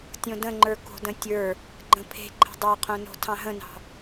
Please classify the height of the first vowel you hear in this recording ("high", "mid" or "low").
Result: mid